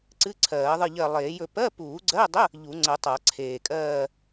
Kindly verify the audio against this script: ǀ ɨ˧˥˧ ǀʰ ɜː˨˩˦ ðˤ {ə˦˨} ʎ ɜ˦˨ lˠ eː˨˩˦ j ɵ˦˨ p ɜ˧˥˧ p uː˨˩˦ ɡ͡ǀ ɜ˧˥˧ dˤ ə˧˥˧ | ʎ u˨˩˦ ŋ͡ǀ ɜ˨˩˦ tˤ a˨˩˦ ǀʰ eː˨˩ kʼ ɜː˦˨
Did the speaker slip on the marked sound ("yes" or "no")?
yes